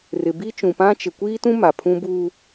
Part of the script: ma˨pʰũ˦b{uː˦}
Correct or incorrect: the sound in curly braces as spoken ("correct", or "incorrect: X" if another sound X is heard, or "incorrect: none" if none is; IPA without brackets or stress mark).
correct